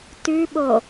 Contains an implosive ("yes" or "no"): yes